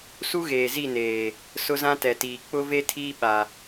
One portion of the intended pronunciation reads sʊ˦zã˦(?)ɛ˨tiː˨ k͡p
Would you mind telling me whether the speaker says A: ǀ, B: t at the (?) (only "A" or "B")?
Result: B